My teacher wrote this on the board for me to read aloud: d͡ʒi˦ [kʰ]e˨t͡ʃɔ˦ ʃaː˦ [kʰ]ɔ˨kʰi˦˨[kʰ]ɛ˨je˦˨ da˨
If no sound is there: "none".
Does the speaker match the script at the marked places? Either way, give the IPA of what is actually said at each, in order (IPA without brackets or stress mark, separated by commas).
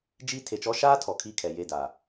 tʰ, tʰ, kʰ